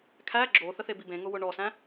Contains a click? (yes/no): yes